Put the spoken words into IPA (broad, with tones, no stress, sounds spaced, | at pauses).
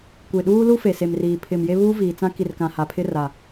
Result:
kʷ e˨ ɗ uː˦ l u˦ f e˨ s e˨ m r iː˨ pʰ ɪ˨ m j e˦ β uː˦ v iː˨ t͡s ã˦ k i˨ r k ã˨ h a˨ pʰ ɪ˦ r a˨